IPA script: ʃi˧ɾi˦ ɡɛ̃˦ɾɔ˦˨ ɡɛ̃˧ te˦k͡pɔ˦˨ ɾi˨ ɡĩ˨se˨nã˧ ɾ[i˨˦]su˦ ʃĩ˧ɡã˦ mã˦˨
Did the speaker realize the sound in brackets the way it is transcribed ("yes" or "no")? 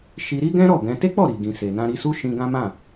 no